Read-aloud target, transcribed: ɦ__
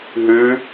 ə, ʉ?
ʉ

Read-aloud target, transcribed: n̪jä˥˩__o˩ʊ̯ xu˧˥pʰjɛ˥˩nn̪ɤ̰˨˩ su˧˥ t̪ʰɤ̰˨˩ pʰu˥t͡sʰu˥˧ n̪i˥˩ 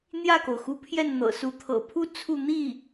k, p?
k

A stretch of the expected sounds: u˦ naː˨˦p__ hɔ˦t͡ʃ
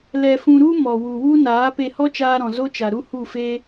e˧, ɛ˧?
e˧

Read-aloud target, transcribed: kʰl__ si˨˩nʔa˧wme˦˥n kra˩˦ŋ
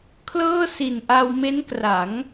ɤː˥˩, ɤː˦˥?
ɤː˥˩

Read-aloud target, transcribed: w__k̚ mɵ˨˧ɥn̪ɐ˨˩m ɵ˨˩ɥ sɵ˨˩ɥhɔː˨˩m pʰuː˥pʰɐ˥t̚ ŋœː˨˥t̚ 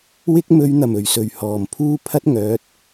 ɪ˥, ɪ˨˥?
ɪ˥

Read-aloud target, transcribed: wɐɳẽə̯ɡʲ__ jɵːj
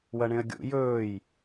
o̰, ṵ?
ṵ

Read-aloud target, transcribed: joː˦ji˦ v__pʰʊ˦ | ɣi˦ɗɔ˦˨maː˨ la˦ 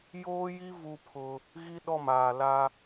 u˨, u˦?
u˦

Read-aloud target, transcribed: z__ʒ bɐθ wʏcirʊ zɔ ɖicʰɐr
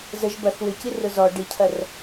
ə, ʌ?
ə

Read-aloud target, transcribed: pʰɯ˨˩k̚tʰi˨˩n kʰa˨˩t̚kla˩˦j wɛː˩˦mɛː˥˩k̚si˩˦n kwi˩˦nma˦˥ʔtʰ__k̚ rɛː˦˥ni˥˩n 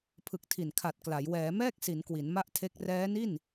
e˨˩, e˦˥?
e˦˥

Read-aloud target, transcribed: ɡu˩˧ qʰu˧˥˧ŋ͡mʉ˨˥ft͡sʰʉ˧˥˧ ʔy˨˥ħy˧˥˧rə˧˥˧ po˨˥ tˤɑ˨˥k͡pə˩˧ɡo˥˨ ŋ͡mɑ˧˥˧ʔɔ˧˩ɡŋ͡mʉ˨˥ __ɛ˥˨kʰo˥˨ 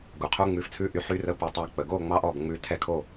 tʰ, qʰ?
tʰ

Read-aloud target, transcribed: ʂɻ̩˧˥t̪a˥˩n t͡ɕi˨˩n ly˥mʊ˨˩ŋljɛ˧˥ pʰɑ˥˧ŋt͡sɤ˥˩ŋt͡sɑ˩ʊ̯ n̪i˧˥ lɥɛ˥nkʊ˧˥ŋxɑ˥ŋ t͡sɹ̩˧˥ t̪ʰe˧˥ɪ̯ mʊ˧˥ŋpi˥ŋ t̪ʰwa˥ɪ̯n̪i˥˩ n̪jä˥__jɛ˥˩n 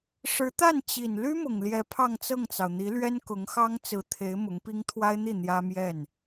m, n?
m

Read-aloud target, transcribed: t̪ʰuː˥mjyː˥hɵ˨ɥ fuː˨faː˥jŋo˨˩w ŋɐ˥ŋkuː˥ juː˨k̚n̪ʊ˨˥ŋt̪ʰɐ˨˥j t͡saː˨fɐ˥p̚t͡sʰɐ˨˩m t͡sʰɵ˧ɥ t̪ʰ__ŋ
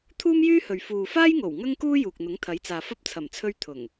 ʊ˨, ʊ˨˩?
ʊ˨˩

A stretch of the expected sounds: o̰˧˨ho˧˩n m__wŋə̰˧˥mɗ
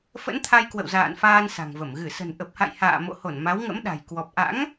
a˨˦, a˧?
a˨˦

